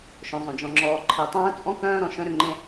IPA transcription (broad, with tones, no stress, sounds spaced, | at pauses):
ʃ œ̃˨ zˤ œ̃˨ d͡ʒ ɔ̃˨ ŋ͡ǁ ɔː˨ ǃʰ e˨ tˤ œ̃ː˦ t͡sʼ ɔ̃˦ k œ̃ː˦ ɾ ɔ̃˨ ʃ œ̃˦ ɾ ʏ˨ ŋ͡ǃ ẽ˦